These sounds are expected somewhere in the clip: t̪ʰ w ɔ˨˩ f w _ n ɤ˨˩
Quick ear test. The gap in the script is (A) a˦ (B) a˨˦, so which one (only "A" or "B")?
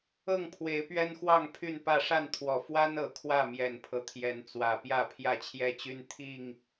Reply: A